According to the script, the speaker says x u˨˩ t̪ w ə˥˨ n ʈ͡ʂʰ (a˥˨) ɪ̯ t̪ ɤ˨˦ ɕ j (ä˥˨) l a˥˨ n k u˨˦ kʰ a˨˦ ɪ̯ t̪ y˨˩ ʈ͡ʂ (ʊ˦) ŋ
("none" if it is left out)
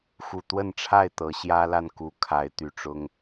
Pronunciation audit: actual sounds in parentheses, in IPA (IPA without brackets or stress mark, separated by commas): a˥˨, ä˦, ʊ˦